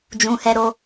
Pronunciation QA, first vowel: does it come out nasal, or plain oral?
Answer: nasal